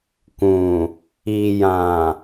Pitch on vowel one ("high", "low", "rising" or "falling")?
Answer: low